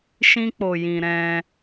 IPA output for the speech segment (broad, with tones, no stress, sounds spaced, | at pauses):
ʃ ĩ˦ k͡p o˧ j ĩ˧ ɾ ɛ̃˧